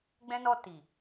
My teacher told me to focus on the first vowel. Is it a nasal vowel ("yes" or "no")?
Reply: yes